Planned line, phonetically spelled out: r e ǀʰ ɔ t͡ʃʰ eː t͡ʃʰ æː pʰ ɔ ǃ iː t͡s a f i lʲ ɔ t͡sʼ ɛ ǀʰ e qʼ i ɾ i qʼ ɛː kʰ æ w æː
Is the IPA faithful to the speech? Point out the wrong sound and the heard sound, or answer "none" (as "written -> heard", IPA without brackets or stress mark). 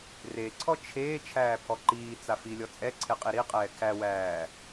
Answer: none